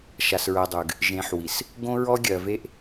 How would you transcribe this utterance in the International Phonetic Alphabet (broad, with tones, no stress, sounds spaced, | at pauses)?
ʃ a˨ s ɹ ɜ˨ dˤ ʉ˨ ɡ | ʒ ẽ˨ ħ w i˨ s | ɡ õ˦ ɹ ɔ˦ ɡʲ ɜ˨ v e˦ ʔ